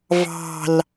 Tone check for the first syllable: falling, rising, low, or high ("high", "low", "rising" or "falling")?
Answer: low